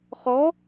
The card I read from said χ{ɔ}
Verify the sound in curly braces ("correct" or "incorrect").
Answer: correct